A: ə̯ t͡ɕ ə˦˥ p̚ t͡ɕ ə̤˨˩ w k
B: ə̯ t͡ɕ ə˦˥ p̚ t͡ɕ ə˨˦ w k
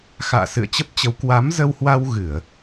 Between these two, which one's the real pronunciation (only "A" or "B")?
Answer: B